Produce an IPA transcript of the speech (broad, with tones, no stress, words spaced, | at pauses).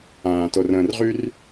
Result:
ãː˧to˧rə̃ː˧rʁy˥r